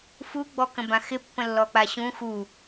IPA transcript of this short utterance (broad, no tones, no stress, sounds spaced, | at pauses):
f u ɡ͡b ɔ k ə̃ b ã x ɪ pː ə̃ lː ɔ k͡p a ɕ ũ x u